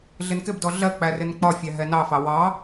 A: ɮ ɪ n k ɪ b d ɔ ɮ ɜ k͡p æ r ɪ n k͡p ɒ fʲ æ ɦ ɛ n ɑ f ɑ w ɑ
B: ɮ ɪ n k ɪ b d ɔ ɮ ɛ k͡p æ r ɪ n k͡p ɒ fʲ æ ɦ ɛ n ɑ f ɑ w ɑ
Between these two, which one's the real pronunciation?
A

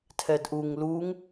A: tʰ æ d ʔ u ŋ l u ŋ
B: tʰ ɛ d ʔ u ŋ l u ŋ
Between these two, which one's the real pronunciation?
B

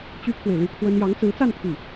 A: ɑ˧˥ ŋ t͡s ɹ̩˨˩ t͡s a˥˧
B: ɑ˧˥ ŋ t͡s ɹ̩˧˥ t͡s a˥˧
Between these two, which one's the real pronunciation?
B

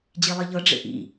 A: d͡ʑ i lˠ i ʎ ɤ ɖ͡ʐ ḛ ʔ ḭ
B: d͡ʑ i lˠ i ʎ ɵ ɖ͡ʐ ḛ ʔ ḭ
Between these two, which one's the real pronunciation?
A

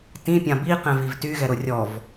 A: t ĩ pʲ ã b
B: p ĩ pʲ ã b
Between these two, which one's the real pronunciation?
A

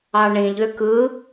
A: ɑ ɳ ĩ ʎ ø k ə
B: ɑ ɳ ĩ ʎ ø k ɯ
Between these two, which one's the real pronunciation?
B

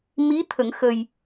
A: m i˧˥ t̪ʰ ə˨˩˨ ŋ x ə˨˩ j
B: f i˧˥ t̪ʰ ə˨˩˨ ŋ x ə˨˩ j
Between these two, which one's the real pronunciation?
A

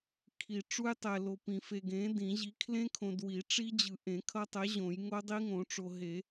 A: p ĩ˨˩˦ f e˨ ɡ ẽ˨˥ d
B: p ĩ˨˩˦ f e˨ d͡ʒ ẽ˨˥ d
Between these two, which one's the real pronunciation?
A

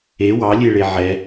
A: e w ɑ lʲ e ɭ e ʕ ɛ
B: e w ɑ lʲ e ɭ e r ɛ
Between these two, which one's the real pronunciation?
A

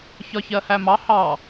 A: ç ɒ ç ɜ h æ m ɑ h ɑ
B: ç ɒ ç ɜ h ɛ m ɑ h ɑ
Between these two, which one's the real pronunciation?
A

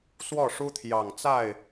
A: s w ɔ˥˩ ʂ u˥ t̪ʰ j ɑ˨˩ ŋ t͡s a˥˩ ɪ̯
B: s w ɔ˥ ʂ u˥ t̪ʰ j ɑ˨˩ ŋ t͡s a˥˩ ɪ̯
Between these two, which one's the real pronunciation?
A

